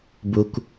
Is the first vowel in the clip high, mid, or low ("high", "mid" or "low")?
high